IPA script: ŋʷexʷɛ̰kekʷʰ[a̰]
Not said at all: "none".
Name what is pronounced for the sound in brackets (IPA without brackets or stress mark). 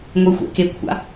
a̰